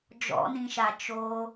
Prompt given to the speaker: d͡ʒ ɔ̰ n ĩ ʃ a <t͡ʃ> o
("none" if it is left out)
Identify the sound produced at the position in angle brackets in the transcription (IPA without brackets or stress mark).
t͡ʃ